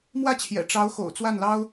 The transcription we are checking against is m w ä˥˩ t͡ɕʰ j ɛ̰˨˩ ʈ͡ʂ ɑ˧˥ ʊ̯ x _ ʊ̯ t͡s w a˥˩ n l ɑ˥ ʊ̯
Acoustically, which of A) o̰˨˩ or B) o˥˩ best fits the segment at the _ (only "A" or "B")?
A